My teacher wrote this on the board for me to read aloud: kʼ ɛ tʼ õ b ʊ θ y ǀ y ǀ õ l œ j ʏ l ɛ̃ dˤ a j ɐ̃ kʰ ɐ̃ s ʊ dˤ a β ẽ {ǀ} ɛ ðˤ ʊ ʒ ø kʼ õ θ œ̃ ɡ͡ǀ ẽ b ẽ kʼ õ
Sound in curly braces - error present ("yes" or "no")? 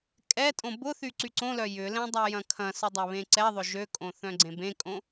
no